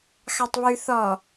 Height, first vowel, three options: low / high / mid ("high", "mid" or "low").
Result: low